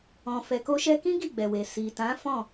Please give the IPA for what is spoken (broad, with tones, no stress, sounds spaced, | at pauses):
ɔ̃˨ f ɛ˨ k o˧ ʃ ɛ˧ k ĩ˦ ɡ i˦˨ ɡ͡b ɛ˨ w e˨ s i˨ t ã˨˦ f ɔ̃˦˨